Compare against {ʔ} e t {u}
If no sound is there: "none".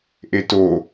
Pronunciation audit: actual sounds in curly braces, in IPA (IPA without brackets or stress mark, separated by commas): ʔ, o